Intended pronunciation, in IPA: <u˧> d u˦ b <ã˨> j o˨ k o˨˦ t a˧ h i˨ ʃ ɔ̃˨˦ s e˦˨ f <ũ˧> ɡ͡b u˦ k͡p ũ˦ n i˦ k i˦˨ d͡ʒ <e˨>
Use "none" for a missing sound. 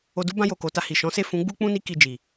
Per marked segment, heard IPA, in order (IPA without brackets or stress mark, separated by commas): o˧, ã˧, ũ˨˦, i˨